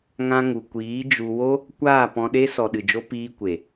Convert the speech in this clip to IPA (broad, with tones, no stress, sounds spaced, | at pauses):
ŋ ã˧ ŋ u˨ kʷ iː˨˦ d͡ʒ u˧ w o˦ | kʷ aː˦˨ p ɔ̃˧ ɗ e˦ s ɔ˨ ɗ ɨ˨ d͡ʒ o˧ p iː˧ kʷ e˨